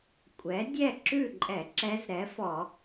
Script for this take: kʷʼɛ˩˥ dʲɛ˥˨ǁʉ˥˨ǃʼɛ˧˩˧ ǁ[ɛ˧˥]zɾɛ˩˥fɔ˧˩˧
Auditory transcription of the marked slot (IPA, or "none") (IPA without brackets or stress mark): ɛ˧˥